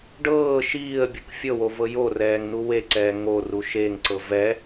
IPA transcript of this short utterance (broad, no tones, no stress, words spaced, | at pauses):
ɖɤː ʃiːə̯bʲɤk fʲɤwo vɤjorɛːŋ nuweǀɛː ŋoru ʃeŋǀɤ vɛ